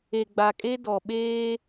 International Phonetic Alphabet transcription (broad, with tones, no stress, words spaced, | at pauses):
e˨ɡ͡ba˨kʼe˦ dɔ˨ ɓeː˦